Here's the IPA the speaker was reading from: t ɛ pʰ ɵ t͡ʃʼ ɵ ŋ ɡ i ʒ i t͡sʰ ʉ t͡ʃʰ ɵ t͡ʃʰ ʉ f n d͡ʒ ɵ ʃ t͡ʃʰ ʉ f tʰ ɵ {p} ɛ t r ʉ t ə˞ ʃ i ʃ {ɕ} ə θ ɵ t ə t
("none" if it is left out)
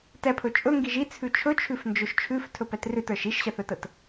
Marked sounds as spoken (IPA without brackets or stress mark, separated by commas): p, ɕ